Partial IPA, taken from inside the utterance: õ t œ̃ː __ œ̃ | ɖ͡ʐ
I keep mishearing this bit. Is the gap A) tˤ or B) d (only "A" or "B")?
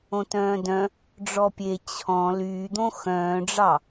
B